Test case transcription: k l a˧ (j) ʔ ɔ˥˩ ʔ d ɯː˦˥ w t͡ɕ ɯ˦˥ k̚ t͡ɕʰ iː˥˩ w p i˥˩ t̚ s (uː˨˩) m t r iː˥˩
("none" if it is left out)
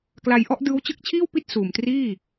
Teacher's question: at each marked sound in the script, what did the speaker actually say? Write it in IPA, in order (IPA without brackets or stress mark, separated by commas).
j, uː˨˩